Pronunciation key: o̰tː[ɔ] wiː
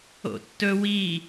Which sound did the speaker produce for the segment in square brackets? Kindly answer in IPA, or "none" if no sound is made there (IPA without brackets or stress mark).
ɵ